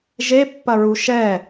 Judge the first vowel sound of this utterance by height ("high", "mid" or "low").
mid